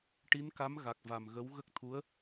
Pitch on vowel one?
rising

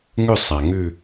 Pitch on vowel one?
falling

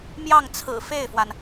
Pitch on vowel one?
falling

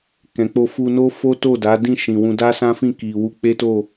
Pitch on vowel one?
low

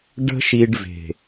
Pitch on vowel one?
high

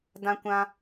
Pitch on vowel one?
high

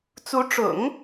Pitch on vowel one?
rising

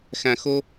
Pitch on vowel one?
low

